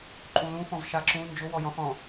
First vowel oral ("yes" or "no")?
no